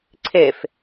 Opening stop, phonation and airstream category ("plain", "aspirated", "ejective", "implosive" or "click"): click